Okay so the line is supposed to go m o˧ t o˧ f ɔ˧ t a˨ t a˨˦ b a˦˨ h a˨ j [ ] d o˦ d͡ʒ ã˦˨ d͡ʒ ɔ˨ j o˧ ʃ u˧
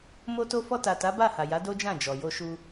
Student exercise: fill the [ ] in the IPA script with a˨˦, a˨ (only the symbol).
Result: a˨˦